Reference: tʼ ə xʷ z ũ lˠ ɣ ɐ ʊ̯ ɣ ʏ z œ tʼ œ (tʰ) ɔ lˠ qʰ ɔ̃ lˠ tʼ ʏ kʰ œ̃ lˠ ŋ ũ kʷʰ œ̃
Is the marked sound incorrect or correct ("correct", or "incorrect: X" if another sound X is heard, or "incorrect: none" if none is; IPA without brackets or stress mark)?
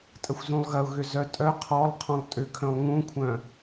incorrect: qʰ